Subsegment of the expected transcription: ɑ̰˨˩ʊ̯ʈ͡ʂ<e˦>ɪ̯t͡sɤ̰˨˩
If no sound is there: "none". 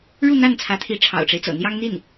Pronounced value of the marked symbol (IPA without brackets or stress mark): e˦